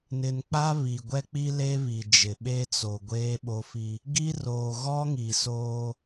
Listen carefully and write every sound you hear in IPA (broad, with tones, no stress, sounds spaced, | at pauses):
n ɪ˨ n k͡p a˦ β i˨ ɡʷ ɛ˦ k͡p i˦ l e˦ β i˨ d͡ʒ ɪ˨ ɓ e˦ t͡s o˨ ɡʷ eː˦ ɓ o˦ f i˦ | ɡ i˦ r oː˨ ɣ ɔ˦ ŋ i˨ s oː˦